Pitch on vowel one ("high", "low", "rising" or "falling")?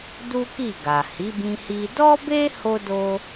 high